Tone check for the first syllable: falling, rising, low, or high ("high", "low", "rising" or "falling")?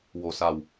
low